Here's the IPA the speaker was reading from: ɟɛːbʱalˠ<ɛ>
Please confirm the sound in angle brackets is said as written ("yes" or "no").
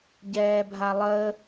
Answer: no